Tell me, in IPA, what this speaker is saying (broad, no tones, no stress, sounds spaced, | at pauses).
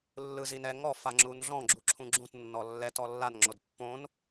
lː ɯ z i n ɛ ŋ ɔ f a ŋ͡ǁ u n ɮ ɔ̃ ɡ͡ǁ u ǁʰ ũ ɡ͡ǁ ũ t nː ɔ lː ɛ t ɔ lː a n ŋ͡ǁ o d pː õ n